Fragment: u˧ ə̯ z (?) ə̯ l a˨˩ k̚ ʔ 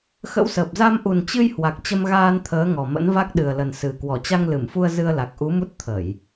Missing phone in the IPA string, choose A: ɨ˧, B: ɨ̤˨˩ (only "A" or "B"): A